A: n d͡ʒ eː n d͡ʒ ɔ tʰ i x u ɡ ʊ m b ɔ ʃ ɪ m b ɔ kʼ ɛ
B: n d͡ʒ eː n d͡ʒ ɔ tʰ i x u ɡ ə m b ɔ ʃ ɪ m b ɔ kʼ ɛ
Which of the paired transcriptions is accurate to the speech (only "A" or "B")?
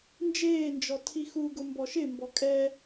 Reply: A